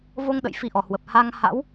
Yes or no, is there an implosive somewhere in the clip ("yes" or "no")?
yes